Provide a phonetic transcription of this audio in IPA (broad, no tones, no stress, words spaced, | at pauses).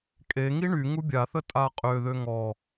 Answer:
kʼeŋi ɳy ŋubʲaθə tʼaqʼøðø ŋɔ